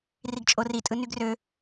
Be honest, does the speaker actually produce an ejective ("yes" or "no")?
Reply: yes